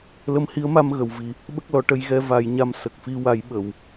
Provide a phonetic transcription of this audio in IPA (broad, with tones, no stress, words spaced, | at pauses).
lə˧mhi˧˥ə̯ma˧m ɣə˨˩˨wvi˨˩ | ɓə˦˥k̚lɔ˨˩˦ ʈə˧jɣɛ˧ va˨˩˦jɲa˧m sə˨˩k̚fi˧wa˨˩˦j ɓə˨˩˨w